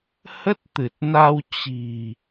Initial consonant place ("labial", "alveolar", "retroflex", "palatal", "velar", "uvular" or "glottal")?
glottal